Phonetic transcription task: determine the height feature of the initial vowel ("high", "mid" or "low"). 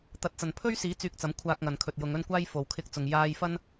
low